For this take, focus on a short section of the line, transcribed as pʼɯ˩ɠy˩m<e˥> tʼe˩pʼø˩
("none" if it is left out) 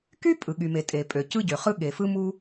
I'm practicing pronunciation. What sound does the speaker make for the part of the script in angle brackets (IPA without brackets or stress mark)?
e˩